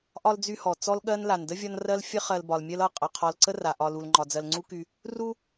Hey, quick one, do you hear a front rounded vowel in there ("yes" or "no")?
yes